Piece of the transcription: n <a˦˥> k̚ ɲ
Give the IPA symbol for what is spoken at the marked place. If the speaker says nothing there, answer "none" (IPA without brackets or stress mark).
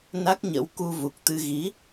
a˦˥